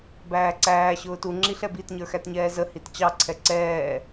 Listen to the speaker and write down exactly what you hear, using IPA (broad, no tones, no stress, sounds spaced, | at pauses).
b æː ǀ æː ɕ ʊː t u ŋ͡ǁ i ɬ ɛ b i t ɲ ə˞ x æ t ɲ ɛː z ə h i t t͡ɕ ɑ ǀʰ ɛ ǀ ɛː